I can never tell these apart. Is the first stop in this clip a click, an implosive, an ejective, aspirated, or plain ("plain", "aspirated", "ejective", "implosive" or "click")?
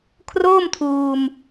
aspirated